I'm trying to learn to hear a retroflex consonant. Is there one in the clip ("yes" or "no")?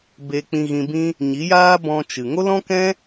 no